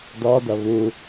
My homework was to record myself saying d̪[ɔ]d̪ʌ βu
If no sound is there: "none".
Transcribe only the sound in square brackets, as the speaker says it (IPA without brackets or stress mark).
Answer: ɔ